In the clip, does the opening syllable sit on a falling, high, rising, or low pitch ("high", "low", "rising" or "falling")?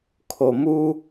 low